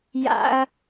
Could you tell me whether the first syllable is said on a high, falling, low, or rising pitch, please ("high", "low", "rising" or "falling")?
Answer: high